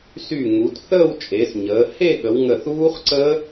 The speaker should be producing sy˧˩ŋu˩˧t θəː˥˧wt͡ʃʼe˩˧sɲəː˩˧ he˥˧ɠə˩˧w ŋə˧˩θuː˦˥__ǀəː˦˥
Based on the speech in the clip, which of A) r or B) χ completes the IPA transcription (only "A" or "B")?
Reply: B